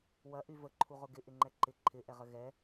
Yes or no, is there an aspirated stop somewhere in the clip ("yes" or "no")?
yes